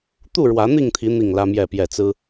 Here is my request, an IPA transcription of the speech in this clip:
t̪ u˥˨ ɻ w ä˨˦ n̪ i˥˨ ŋ t̪ʰ i˨˦ n̪ i˥˨ ŋ l ä˦ m j ɛ˥˨ p j ɛ˥˨ t͡s ɹ̩˦

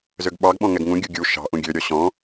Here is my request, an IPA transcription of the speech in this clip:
z ø ɡ ɓ ɑ ɡ ɓ ɔ̃ ŋ ɛ ɡ ŋ ũ ɡʲ u ɡʲ u ʃ ɑ̤ ʔ ũ ɡʲ ø ɾʲ ɔ ɕ ɔ̃

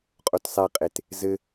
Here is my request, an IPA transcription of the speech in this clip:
qʼ o t sˤ ɛ qʼ e t | z ɘ

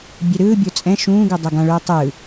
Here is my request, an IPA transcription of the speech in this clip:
bʲ ɛ ɾ ɯː bʲ o t͡sʼ ɛ̃ ʃ ũː ɡ u dˤ ɛ ɡ ã ɭ uː tˤ ɯ

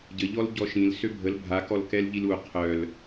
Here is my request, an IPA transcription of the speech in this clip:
ɟ ə ʎ ɔ l ɟ ɔ ʃ ĩ l s ø bʱ ə l bʱ a k ɔ l k ɛ l ʎ i l u qʰ œ l

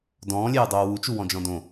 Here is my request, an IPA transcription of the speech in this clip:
d ɔ̃ː lʲ eː dˤ oː w u t͡ʃ u w ɔ̃ d͡ʒ ɔ̃ d õ

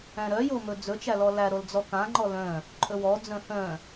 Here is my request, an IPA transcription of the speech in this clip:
æ̃ ɾ œ j o m ɵ d͡z ɵ t͡ʃ æ l ɔ l æ ɾ o l d͡z ɔ k ã ŋ͡ǃ ɔ l œ̃ | ǃʼ ɵ w ɔ d͡z œ̃ h œ̃

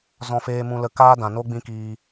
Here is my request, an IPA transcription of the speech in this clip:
z ɔ̃˦ f eː˦ m ũ˧ l ə˧ k aː˦ d ã˨ n o˦ ɡ͡b ĩ˦ k iː˧

